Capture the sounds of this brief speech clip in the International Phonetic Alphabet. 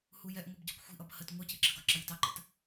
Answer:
hujɛʔŋʷɛb ɟi̤kʷxʷi̤ʔʌb hət ŋʷɜcɪ ǁə̤ɡɒǁʌj i̤tɑǃə̰t

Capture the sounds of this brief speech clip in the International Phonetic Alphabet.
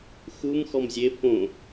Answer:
xum xɔmzʲe fõ

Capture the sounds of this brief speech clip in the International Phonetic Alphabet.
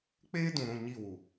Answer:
k͡peː˦dũ˨ɾũ˦˨ ɲi˦˨wu˨

